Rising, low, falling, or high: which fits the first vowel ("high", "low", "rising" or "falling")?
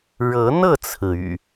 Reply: rising